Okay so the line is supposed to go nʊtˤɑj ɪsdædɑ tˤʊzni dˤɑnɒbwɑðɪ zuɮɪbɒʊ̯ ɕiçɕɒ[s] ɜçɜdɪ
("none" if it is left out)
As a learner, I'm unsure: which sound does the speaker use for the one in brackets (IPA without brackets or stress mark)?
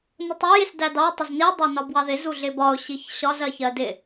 z